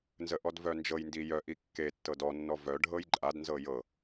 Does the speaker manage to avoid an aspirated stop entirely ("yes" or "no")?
yes